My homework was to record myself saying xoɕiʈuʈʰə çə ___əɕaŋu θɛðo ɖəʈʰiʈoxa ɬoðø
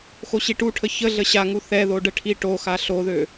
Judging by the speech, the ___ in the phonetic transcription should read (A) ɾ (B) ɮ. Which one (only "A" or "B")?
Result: B